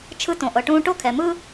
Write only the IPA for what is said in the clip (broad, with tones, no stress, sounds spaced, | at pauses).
t͡ʃʰ ɯ˥ t õ˩ ʔ ɤ˩ ʈ ũː˥ ʈ o˥ kʰ ɛ˩ m ɯ˥